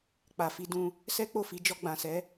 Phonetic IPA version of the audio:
k͡p a˨ f i˧ d ũ˧ | s ɛ˦ k͡p o˦˨ f i˨˦ d͡ʒ ɔ˧ ɡ͡b ã˨ s ɛ˨˦

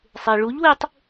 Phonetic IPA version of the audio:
sˤ e i̯ ɭ u ʎ w e tˤ

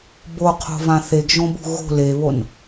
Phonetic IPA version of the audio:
b o qʰ o̤ v ã θ e ɡ ʒ õ b ṳ ɣ o̤ l e β o n

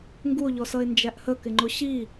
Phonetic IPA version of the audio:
ŋ ɡ u o̯ ʎ ɔ s ʌ e̯ n d͡ʒ æ ʔ h ə k ɪ ŋ͡ǃ ʊ ɕ i

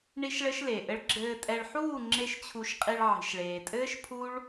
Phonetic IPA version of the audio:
ɳ i˦ ʃ ɭ ɘ˦ ʃ l e˨ ʔ ɘ˦ ɭ ɡ͡ǁ ɘː˧ tʼ ɛ˧ ɭ ħ uː˦˨ ŋ͡ǁ e˦ ʃ t͡ɕʰ u˧ ʃ qʼ i˧ ɭ ʕ i̤˨ ʃ ɭ eː˨ tʼ ɘː˦ ʃ pʰ u˦ ɭ

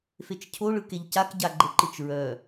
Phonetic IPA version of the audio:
f e t͡ʃ cʰ o ɭ ɯ k e ʎ c a k ɟ a ɡ͡ǃ ə ǃ ɯ t͡ʃ ɹ œ

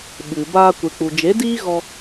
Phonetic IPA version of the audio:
ɓ ɨ˨ b aː˧ kʷ e˨ k͡p u˨ d͡ʒ e˨˦ d iː˦ ɣ ɔ˧

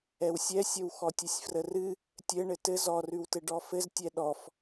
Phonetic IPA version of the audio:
ɛ w sʲ ɛ sʲ ə w x ɔ tʲ ə sʲ f r ə r ɨ | tʲ ɘ ɳ ɘ t ɘ z ɔ r ʉ w t ɘ ɖ ɔ f ɘ z tʲ ɛ ɗ ɔ f

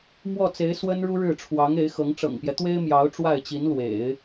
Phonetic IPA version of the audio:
m w ɔ˥˩ t͡s e˧˥ ɪ̯ s w ə˥ n ɻ u˥ ɻ ɻ̩˥˩ ʈ͡ʂʰ w ɑ˧˥ ŋ e˧˥ ɪ̯ x ɤ˧˥ ŋ ʈ͡ʂ ɤ̰˨˩ ŋ p j ɛ˦ t̪ w e˥ ɪ̯ m j ɑ˧˥ ʊ̯ ʈ͡ʂ w a˥˩ ɪ̯ t͡ɕ i˧˥ n l w ḛ˨˩˦ ɪ̯

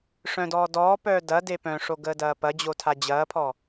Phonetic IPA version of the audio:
ʂ œ̃ d ɔː d ɔː p œː d ɐ d e p œ̃ ʂ o ɡ əː d ɐː p ɐ d͡ʑ o tʰ a d͡ʑ ɐː pʰ ɔ

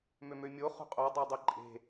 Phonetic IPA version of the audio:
m ø m ø mʲ o χ ṳ qʼ o dˤ e dˤ e ǃʼ e̤

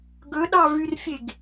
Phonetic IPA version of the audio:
ɡ ɵ ɗ ɑ v y r fʲ e ɡ

